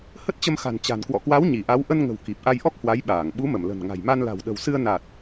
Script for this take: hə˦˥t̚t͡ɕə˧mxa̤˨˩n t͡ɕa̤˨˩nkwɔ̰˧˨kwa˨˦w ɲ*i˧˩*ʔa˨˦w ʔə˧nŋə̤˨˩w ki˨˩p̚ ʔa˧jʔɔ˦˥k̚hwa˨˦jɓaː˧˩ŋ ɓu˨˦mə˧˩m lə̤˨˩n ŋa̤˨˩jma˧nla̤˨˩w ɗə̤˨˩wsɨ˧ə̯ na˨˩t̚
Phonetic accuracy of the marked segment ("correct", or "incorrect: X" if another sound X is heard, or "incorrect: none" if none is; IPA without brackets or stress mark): correct